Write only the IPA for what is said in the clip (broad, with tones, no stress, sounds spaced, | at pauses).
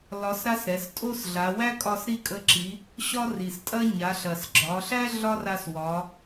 l ɒ˧˥ s ɾ a˥ s ɾ ɛ˩˧ s tʼ o˥ s ɮ a˩˧ w æ˥ kʼ ɒ˧ s ɾ i˥ kʼ ə˧˥ ǁ i˩˧ | ɕ ɒ˥ r i˩ s tʼ ɐ˥ ɲ a˩˧ ɬ ɐ˩ s ɡ͡ǁ ɒ˩˧ ɬ æ˥ ɮ ɒ˥ r a˧ s w ɒ˩˧